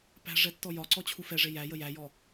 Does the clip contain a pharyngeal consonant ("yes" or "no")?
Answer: no